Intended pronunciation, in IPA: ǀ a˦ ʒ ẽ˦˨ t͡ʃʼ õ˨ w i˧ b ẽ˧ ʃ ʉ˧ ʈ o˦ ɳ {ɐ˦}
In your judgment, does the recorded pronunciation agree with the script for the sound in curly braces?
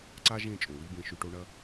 yes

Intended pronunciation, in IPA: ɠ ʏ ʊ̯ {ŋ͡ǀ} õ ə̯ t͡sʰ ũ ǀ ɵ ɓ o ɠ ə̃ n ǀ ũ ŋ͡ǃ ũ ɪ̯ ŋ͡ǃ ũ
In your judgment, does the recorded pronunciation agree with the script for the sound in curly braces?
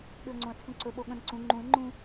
yes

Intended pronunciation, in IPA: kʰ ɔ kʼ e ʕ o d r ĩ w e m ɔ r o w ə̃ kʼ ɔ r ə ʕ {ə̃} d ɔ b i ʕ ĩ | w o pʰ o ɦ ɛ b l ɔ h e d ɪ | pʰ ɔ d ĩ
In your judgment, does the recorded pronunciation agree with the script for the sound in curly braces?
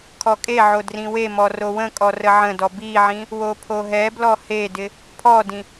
yes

